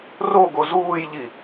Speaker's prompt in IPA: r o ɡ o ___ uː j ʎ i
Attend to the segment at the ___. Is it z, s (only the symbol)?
z